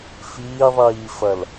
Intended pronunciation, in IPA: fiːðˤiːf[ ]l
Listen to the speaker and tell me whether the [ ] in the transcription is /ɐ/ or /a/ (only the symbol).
ɐ